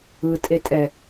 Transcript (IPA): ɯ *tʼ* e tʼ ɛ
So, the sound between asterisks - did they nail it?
yes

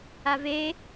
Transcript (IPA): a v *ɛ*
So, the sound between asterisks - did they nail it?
no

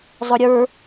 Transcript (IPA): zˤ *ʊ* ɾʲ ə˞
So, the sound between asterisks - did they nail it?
yes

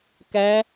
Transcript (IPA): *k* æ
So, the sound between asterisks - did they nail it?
yes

